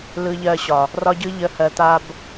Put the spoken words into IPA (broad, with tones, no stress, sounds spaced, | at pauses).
l ɯ˨ ʎ ɜ˨ ɕ ɒ˨ | r ɒ˦ ɟ ɯ˦ ʎ ə˨ h ɜ˨ t̪ a˨ b